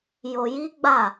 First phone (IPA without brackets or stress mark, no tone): j